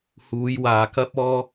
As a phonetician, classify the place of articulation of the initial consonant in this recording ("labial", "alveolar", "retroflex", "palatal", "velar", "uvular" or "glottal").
glottal